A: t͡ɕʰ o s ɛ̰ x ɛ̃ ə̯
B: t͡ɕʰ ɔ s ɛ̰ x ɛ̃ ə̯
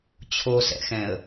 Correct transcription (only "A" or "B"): A